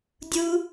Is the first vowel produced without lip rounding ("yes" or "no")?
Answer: no